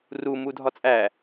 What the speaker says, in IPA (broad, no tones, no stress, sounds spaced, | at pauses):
r u m u dʱ ɒ t͡sʼ æ